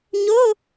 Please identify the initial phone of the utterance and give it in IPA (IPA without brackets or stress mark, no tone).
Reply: ɲ